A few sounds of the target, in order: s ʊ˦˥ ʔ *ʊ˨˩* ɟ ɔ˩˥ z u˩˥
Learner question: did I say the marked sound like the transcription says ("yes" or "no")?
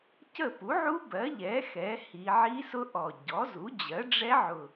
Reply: no